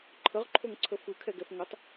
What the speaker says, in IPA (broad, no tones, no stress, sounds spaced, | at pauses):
ǃʰ ə ʁ ǃʰ o ŋ ǀʰ ə f ɯ kʰ ɛ ɡ ɛ f ŋ ə tˤ